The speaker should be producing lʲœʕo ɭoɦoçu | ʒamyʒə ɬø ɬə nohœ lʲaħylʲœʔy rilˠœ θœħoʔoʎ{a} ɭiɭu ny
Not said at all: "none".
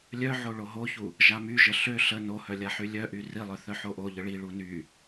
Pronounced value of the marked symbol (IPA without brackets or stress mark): ə